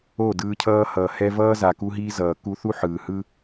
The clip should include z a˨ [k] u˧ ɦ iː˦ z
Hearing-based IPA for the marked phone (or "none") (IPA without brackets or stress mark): k